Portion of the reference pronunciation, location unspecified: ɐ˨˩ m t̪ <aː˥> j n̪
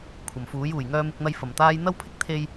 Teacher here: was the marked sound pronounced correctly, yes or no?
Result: yes